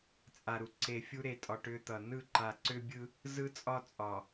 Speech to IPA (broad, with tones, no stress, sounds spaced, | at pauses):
t͡sʼ a˨ ɾ u˨ ǀ e˨ fʲ u˦ ɾ e˨ tʼ ɒ˨ ʈ ʏ˦ t̪ ʌ˨ n ɯ˦˨ ǃ a˨ ǀ ʏ˦ bʲ ɯ˦ | z ɯ˦ t͡sʼ ɒ˦ t͡sʼ ɒ˨